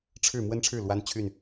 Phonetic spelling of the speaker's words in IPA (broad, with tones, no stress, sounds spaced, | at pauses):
ʈ͡ʂʰ ɻ̩˥˨ m w ə˦ n ʈ͡ʂʰ ɻ̩˥˨ l w a˦ n t͡ɕʰ y˥˨ n